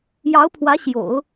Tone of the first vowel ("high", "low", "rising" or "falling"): rising